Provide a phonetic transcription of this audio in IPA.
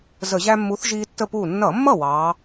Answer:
z ə˧˩˧ ʑ æ˦ mː u˨˥ θ ʒ iː˦ tː ə˥˩ p uː˥˩ nː ʌ˧˩˧ mː ʌ˥˩ w ɑː˨˥

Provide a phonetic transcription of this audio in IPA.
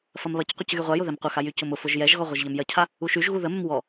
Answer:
f ɐ m β ɐ c qʷ ə c ɣ y ʁʷ a j ʊ ð ɛ m qʷ ə x a j y c ʊ m ʊ f ʊ ʒ j ɛ ʒ ɣ ɔ ʁʷ ɐ ʒ ʎ ɐ m j ɐ cʰ a | u ʃ y ʒ ɣ u ð ə m ə m w ɔ

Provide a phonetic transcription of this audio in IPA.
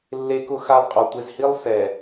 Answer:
lː e˦ k ʊ˦ x a˦ lˠ qʼ ɔ˨ tʷ e˨ z h i˦ lˠ s ɛ˨

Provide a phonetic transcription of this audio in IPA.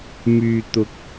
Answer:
m yː˨ t̪ ʊ˨ k̚

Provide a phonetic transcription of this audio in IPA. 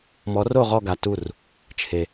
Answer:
m ɔ˧˥ r o˥˧ ʁ ɔ˥˧ ɡ a˧ t u˥˧ r | t͡ʃʰ e˧

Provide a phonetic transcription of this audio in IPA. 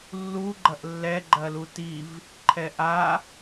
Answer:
lː u ɡ͡ǃ ɐ ʔ lː ɛ ɡ͡ǃ ɐ l u t i v | ǃʰ ɛ ʔ a

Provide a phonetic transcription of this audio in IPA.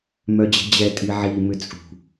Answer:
m œ d͡ʑ ɛ̤ d͡ʑ ɛ tʼ i ʕ i m ʏ t͡sʼ ṳ

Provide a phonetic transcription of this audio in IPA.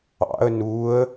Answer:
ɑ̰ ə̯ n u ə̯

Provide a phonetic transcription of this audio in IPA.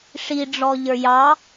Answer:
ʂ i ɖ͡ʐ ɔ ʎ ə˞ j ɑ

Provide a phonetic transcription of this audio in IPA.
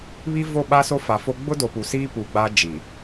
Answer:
β i˦ v o˦˨ ɓ a˦ s o˦ f a˨ f o˦ ɡ͡b ʊ˦ d o˨ p u˨ s iː˦ p u˨ ɡ͡b a˦ d͡ʒ i˨

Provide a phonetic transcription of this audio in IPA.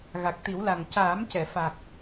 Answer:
ɣ a˨˩ k̚ t̪ i˨˩˦ w l a˨˩ ŋ c aː˨˩˦ m c ɛ˨˩˨ f a˨˩ k̚

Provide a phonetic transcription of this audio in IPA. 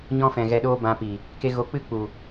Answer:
ɲ ɔ̃˧ f ɛ̃˨ ɣ ɛ˧ ɗ oː˦ b ã˧ p i˨ | k e˧ ɣ o˨˦ k͡p ɨ˦ k͡p u˨

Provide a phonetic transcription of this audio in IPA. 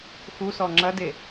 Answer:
x u s ɔ ŋ͡ǁ ɐ d e

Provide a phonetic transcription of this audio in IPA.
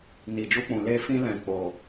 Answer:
n i˨ d͡ʒ u˧ k͡p ũ˨ l e˧ f ĩ˧ l ɛ̃˨ k͡p o˨

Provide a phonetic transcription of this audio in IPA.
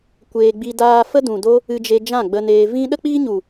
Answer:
kʷ eː˧ ɡ͡b i˧ d aː˦ f ə˦ d ũ˨ d o˦ | ɨ˧ d͡ʒ e˧ d͡ʒ ã˦˨ ɡ͡b ə˧ n eː˧ v ĩ˧ ɗ ə˦ k͡p iː˦ ɲ u˨

